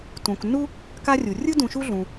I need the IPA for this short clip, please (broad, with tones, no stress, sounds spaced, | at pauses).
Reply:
t ũ˩ k nː u˥ | k a˦ rʲ u˩ rʲ ɯ˥ d ũ˨ ʃ u˥ ɮ ũ˩